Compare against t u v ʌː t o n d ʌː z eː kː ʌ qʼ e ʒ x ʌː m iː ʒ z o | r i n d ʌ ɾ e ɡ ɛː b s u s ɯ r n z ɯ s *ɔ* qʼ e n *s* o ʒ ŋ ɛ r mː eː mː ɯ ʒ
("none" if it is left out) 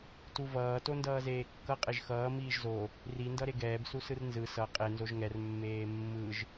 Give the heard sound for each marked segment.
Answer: ʌ, z

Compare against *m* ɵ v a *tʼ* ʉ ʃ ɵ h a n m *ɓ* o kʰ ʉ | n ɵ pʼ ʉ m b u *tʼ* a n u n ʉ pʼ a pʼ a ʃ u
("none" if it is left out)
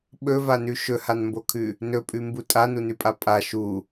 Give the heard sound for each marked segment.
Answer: ɓ, n, b, tʼ

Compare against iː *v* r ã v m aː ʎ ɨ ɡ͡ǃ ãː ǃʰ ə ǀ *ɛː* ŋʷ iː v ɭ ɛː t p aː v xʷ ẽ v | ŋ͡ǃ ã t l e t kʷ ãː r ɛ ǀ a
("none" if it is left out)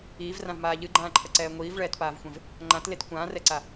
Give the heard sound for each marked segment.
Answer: v, ɛː

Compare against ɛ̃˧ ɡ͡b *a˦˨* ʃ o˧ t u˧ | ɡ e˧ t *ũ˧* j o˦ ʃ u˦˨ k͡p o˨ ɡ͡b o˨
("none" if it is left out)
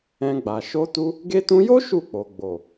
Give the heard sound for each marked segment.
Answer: a˨, ũ˧

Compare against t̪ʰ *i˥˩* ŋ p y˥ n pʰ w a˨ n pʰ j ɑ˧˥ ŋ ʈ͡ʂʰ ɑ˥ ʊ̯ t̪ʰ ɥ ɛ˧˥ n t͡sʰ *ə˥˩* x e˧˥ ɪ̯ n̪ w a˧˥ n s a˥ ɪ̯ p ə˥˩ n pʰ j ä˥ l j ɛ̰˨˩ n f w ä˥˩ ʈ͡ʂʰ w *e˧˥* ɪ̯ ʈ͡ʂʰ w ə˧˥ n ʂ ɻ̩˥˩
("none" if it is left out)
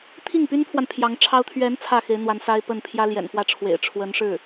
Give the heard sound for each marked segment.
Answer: i˥˩, ä˥˩, ḛ˨˩

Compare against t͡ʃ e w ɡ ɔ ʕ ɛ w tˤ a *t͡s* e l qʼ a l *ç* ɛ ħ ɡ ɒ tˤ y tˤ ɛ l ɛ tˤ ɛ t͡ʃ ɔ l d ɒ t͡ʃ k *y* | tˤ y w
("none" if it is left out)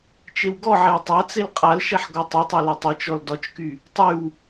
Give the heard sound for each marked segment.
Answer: t͡s, ʃ, y

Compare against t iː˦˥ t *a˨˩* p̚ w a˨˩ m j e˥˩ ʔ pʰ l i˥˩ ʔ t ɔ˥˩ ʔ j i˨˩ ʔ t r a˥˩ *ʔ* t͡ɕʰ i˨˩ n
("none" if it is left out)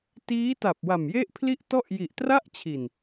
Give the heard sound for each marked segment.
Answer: a˨˩, ʔ

